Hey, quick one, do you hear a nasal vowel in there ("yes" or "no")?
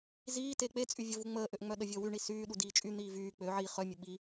no